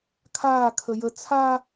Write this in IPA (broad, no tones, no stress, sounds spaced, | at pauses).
kʰ aː kʰ ə j ə t͡sʰ a